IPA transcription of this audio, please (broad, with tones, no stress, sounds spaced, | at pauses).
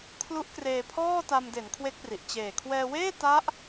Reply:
kʰ l u˦˥ ʔ k r eː˧ pʰ ɔː˥˩ t a˧ m d e˩˦ n kʰ w e˦˥ k̚ p r i˨˩ ʔ t͡ɕ eː˨˩ kʰ w ɛː˧ w eː˥˩ t a˦˥ ʔ